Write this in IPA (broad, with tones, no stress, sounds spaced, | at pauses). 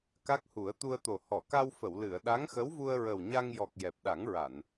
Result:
k a˦˥ k̚ h u˨˩˦ ə̯ t̪ u˧ ə̯ t̪ o˨˩ h ɔ˨˩˨ k a˧ w f ə˨˩˨ w l ɨ˨˩˨ ə̯ ɗ a˧˥ ŋ x ə˧˥ w v u˧ ə̯ ɹ ə˨˩ w ɲ a˧ ŋ j ɔ˨˩ k̚ j ɛ˨˩ p̚ ɗ a˨˩˦ ŋ ɹ a˨˩˨ n